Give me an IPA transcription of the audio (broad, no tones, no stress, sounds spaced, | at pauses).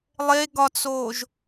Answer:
lˠ e ɡ ɒ t͡s oː ʒ